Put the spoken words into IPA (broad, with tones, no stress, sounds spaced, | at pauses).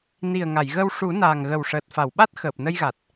n i˨˩ ə̯ ŋ a˨˩˨ j ɣ ə˧ w ʂ u˨˩˦ n aː˨˩ ŋ ɣ ə˨˩ w ʂ əː˨˩ t̚ f a˨˩˨ w ɓ a˦˥ t̚ x əː˨˩ p̚ n ə˧ j ɣ a˨˩ t̚